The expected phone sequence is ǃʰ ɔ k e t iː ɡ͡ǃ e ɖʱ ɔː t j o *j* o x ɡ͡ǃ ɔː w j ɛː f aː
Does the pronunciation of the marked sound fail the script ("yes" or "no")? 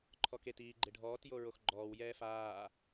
yes